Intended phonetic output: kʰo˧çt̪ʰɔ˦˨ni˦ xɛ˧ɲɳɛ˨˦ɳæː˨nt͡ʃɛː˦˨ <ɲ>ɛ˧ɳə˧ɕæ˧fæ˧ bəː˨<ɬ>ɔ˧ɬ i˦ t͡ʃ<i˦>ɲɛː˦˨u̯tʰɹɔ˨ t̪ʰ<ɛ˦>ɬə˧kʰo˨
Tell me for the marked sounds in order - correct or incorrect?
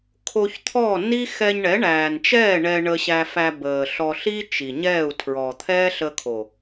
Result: incorrect: ɳ, correct, incorrect: i˨, incorrect: ɛː˦

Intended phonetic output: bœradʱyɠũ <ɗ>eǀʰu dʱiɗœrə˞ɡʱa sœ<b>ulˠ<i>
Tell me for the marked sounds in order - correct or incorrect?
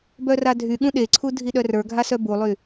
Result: correct, correct, incorrect: y

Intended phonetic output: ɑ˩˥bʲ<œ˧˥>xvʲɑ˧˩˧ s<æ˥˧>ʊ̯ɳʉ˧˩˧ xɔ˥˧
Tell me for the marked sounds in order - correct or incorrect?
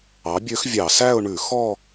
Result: incorrect: ø˧˥, correct

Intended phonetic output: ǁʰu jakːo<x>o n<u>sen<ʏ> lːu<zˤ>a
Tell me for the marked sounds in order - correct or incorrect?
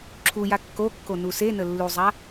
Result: incorrect: kː, correct, incorrect: ə, correct

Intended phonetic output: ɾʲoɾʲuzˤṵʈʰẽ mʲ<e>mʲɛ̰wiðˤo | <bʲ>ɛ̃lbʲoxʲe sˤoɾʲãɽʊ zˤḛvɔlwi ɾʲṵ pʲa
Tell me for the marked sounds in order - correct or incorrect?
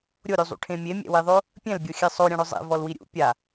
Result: correct, incorrect: pʲ

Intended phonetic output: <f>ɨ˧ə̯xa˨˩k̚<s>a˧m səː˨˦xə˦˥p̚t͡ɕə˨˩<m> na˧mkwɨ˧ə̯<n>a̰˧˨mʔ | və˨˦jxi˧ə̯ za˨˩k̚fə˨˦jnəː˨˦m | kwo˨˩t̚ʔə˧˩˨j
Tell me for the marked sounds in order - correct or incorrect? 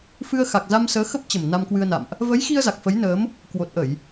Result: correct, incorrect: z, correct, correct

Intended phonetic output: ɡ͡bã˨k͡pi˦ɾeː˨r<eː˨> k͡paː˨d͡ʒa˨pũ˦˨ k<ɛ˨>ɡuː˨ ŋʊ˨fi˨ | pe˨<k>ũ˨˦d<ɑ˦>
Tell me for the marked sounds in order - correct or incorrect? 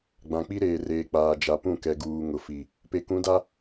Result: correct, correct, correct, incorrect: a˦

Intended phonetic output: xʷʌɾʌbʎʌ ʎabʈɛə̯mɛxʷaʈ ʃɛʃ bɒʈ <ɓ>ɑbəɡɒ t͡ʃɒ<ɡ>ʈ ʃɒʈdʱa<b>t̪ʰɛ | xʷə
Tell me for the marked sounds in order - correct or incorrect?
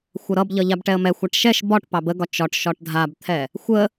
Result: incorrect: p, incorrect: none, correct

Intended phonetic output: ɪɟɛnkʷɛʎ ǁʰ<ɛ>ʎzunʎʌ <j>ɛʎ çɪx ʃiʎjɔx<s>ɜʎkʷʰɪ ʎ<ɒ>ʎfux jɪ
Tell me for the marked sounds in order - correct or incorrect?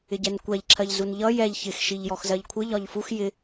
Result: incorrect: ɜ, correct, incorrect: z, correct

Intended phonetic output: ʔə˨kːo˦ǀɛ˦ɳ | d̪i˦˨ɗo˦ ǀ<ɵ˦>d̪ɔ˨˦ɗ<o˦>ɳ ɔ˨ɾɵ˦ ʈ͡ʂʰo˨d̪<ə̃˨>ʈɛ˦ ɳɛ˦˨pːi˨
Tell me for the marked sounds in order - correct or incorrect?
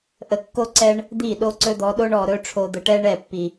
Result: correct, correct, incorrect: ə˨

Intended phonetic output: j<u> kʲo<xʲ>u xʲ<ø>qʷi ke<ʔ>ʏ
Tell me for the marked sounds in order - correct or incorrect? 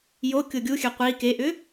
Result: incorrect: o, incorrect: ɡʲ, correct, correct

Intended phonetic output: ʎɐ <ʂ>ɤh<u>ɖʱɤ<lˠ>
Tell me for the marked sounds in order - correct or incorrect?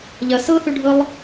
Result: incorrect: s, incorrect: ø, correct

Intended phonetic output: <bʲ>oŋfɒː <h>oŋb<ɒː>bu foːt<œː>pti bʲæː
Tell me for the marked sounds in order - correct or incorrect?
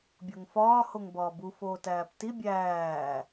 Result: correct, correct, correct, incorrect: æː

